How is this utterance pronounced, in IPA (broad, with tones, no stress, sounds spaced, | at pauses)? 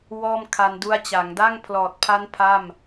w ɔː˥˩ m kʰ a˧ n d u˦˥ a̯ t͡ɕ a˩˦ ŋ d a˥˩ ŋ pʰ l ɔː˨˩ t̚ pʰ a˦˥ n pʰ a˥˩ m